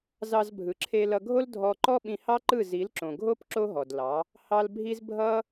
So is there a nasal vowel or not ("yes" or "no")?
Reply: yes